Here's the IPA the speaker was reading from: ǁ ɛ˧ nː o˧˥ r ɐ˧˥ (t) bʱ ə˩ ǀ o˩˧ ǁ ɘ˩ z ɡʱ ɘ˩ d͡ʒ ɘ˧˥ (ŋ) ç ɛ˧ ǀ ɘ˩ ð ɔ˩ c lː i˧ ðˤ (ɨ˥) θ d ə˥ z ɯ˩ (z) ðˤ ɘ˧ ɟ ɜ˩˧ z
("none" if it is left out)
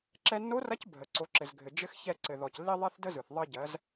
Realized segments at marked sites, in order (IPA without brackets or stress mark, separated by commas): c, x, ɛ˥, θ